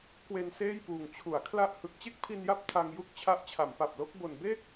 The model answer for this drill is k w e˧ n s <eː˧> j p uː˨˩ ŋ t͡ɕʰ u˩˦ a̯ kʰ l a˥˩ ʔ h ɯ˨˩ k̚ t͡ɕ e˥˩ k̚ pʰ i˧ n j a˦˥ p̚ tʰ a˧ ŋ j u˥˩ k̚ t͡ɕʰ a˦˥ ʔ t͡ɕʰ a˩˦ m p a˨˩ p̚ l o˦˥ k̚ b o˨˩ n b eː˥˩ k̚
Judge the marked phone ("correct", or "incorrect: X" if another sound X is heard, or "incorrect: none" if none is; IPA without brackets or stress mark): incorrect: eː˥˩